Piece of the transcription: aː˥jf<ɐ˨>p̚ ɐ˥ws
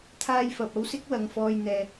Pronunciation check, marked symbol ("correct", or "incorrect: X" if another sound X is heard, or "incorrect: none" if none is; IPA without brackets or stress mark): correct